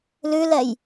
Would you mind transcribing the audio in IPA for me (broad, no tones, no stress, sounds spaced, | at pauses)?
l ʉ l ɛ j